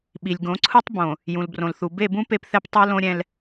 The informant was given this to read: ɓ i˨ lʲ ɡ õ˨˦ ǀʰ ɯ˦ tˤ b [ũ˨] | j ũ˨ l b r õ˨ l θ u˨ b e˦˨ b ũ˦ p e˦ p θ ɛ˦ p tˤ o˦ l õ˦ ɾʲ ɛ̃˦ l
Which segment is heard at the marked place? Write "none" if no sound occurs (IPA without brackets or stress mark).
õ˨